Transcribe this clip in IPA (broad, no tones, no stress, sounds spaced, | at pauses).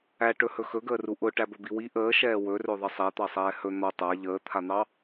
æ ʈ ɵ h ɵ x ɵ ɡ əː r u ʔ ʊ ʈ æ b ɵ b i w i ʔ əː ʃ ɛː w ɵ r ɵ ðˤ ə sˤ ɛ t̪ ɑ sˤ ɛː h ɵ n̪ ɔ tˤ a ʎ əː t̪ʰ a n̪ ɑ